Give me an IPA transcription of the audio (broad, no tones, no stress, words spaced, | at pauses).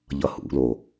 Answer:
ʎʌhṵlo